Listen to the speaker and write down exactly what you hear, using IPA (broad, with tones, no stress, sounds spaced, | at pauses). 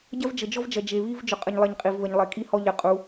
ɟ ɐ˦ v d͡ʒ ə˨ d͡ʒ ɔ˦ v d͡ʒ ɐ˨ d͡ʒ e˨ β i˦ v d͡ʒ ɵ˨ qʼ ə˨ ɲ lˠ e˨ ɲ qʼ i˨ v β ə˨ ɲ lˠ e˨ kʼ i˦ h ɔ˦ ʎ ɐ˨ qʼ u˨˦